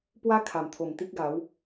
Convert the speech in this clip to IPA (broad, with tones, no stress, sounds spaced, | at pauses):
p w a˦ kʰ a˨˩ m t̪ʰ o˨˩ m t̪ i˦ k̚ ɡ a˨˦ w